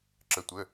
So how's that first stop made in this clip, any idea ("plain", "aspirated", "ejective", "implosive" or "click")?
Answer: click